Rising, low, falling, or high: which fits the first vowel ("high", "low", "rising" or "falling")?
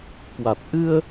low